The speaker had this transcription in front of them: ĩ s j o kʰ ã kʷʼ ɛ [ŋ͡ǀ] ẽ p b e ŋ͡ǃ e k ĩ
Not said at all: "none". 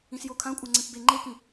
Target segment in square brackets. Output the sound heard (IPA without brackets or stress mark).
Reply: ŋ͡ǀ